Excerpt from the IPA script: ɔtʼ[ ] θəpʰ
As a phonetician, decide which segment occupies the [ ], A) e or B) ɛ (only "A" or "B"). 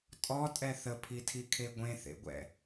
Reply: B